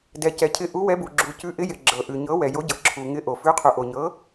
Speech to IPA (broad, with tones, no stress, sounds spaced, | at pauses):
d ɛ˩ c ɛ˩ cʰ ɪ˩˥ ʔ u˩˥ w ɛ˩˥ b u˩ ɡ͡ǁ u˩ c ʉ˩˥ ʔ ɪ˩˥ j ɪ˩ ɡ͡ǁ ɤ˩ ʔ ʉ˩ ɲ ɤ˩˥ w ɛ˩ j o˩˥ ɟ ɤ˩ ǁʰ u˩ ŋ ɪ˩˥ ʔ o˩ f ʉ˩˥ qʰ u˩ ʔ o˩ ɲ ɤ˩˥